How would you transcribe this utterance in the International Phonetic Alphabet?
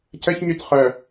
c ə ç ɲ y t χ œ

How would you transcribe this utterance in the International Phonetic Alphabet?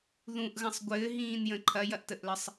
ð ũ ʔ ɣ ɐ̃ sˤ ɡʷ ɘː ɦ ĩː n j ə̃ ǃʰ ɐ j ɐ ʔ t ə ʔ l ə sˤ

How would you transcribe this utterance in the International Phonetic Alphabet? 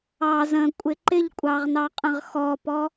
ɑ z ə̃ kʷʼ ɪ ǃ ɪ ʎ kʷʼ ɑ ʁ n ɑ qʼ ə̃ ʁ x ɔ p ɔ

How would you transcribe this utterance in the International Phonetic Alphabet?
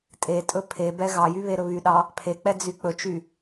tʼ e tʼ ɵ pʰ e b ɛ ɣ ɑ j y β e ɾ ɵ β y ɗ ɑ | pʰ e k͡p ɛ d͡z y k͡p ɵ t͡ʃ y

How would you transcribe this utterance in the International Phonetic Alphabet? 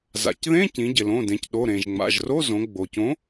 z a̰˩˧ c ð ẽ˧˥˧ c ĩ˩˧ ɟ ɪ˩ l õ˩˧˩ d ẽ˩˧ c ɗ o˩˧˩ ɾ ẽ˩ ʒ ŋ͡m a̰˩˧˩ ʒ r o˧˥˧ z õ˩˧ ɡ͡b o˩ c õ˨˥

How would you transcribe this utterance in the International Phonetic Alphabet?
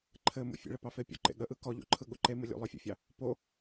ǃʰ ɘ m ṵ fʲ ḛ ɭ ə p ɑ f e pʲ o̰ ǃ ḛ ɠ ə ʔ ɯ k ɔ ʎ ṵ ǃʰ ɯ ɠ u ǃ e m ɯ lʲ ṵ lˠ œ fʲ ṵ fʲ ɑ | p o

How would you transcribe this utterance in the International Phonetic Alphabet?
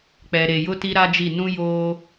k͡p ɛ˨ ɾ e˨ j ʊ˦ t i˦ ɾ a˦ d͡ʒ i˦˨ n ũ˦ j oː˦

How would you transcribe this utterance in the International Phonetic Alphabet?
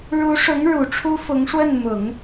ɻ u˧˥ ʂ ʊ˧˥ ŋ ɻ u˨˩ ʈ͡ʂʰ u˥ f ʊ˧˥ ŋ ʂ w ə˥˩ n m ʊ˨˩˦ ŋ

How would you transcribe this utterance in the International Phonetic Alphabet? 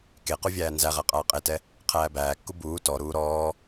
k e q u vʲ æː n z æ ʁ æ qʼ aː qʼ e t ɛ | qʰ æː b æː kː u b uː t ɔ ɾ uː ɾ ɔː

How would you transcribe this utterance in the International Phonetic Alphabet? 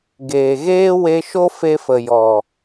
ɡ eː˨ ɣ eː˦ w e˧ ʃ o˦ f e˧ f ə˨ j ɔ˨

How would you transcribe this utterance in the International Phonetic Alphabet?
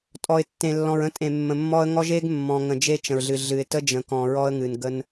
tʼ ɔ˨ ɪ̯ tː ẽ˨ lː ɔ̃˨ ɹ ə̃˦ tʼ ẽ˨ mː ə̃˨ mː ɔ˦ ə̯ ŋ ɔ˦ ʒ e˦ ɡ mː ɔ̃˨ ŋ ə̃˨ d͡ʒ e˦ t͡ʃ ə̃˨ ɹ ɮ ɨ˨ ɮ ɨ˨ ɪ̯ t ə˦ d͡ʒ ə̃˨ k ɔ̃˨ ɹ ɔ˦ ə̯ ŋ ɨ˨ n ɡ ə˦ n

